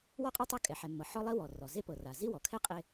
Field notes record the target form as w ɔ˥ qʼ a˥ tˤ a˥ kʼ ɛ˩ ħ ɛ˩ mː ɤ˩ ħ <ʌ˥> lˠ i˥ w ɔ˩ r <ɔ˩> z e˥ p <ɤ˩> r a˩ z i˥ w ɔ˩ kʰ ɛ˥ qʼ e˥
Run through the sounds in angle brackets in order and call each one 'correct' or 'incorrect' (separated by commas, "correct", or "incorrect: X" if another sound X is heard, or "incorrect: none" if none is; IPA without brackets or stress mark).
incorrect: ɔ˥, correct, correct